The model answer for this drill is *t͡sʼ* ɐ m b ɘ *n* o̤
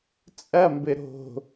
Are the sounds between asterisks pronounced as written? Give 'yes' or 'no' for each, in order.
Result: yes, no

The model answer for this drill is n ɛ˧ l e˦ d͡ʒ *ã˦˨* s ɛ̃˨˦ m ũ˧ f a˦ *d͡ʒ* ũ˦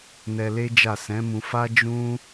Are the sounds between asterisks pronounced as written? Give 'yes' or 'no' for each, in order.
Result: no, yes

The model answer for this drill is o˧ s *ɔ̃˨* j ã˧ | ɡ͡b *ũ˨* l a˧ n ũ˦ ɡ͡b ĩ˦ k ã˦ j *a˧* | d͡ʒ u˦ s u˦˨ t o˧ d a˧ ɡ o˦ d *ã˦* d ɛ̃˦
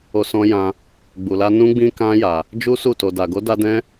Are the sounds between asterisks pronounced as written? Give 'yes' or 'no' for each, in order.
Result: no, no, yes, no

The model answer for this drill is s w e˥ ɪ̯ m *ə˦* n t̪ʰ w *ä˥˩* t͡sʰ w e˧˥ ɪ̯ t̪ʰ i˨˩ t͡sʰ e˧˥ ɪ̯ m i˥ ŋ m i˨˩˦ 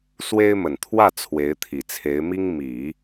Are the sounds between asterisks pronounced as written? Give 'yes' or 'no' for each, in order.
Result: no, yes

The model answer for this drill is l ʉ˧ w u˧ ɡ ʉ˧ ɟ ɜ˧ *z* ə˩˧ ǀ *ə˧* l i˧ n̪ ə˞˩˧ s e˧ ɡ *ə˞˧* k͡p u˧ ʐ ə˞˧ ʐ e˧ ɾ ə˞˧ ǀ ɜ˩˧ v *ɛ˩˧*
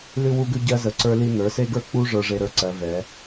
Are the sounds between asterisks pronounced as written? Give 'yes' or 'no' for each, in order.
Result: yes, no, yes, yes

